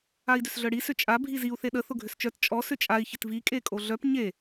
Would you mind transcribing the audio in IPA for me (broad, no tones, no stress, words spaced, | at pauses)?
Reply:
ai̯dʏsɮœɽi sʏt͡ʃʼa bʱiziu̯ θeɗə θʊɡʱʏst͡ʃœt t͡ʃʼɔ sʏt͡ʃʼai̯ çɪtvi kʼekʼoɮœp ɲe